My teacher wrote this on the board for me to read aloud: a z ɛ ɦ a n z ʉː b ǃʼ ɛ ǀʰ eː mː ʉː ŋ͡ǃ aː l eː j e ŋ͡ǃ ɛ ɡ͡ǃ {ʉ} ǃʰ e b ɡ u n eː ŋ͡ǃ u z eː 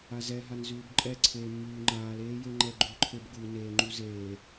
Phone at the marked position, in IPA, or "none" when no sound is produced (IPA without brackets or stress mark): ʉ